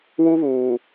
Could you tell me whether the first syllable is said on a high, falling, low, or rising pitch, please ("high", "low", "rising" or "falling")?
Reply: high